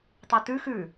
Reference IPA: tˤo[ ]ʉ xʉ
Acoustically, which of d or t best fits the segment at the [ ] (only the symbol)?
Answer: t